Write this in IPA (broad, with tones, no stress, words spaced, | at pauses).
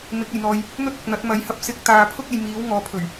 mɪ˨˥k̚ɐ˨˩jn̪ɔː˨j | n̪ɵ˥t̚ɐ˨k̚n̪ɐ˨˥t̚ mɐ˨˥jhɐ˨˥p̚ sɪ˧k̚ t̪aː˨pʰʊ˥k̚ ɐ˨jmiː˨˥w ŋɔː˨˥pʰɵ˨˩ɥ